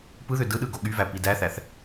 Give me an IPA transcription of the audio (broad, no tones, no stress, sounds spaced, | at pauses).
p ɯ ð ø d ɯ ɗ ɯ ɡ o ɠ y v æ p i d æ θ æ θ